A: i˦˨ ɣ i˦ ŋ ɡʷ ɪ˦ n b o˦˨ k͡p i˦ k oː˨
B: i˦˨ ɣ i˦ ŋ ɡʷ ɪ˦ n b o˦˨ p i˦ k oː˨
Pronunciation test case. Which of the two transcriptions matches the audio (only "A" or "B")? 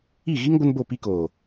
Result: B